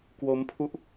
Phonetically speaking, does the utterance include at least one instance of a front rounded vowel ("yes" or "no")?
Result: no